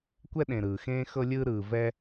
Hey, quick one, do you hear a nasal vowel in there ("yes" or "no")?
yes